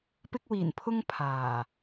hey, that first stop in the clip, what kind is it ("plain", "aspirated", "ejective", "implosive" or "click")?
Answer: plain